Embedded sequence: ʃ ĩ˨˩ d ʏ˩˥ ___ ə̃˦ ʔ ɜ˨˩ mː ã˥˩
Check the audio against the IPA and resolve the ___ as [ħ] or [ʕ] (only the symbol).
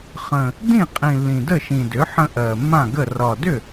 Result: ħ